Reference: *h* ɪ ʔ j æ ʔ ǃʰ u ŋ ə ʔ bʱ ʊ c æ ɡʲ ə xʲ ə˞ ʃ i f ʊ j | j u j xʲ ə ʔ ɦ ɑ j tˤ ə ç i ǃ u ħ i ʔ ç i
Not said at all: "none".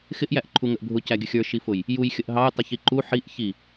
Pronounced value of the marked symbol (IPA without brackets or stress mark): x